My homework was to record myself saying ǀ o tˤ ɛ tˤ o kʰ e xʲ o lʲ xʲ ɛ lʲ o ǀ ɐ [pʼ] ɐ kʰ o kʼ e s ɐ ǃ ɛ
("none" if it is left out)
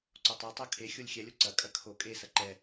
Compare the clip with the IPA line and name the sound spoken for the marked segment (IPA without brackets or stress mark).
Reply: kʼ